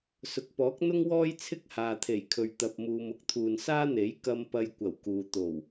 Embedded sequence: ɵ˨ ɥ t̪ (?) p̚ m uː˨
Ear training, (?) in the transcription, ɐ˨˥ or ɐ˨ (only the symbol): ɐ˨